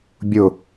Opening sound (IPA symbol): bʲ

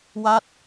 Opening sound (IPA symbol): w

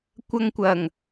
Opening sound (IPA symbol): kʷ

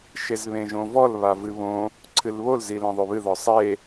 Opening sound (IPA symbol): ʃ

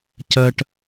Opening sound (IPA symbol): c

